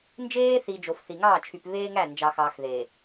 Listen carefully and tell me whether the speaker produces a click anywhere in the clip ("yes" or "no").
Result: no